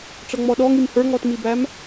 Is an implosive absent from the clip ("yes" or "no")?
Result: no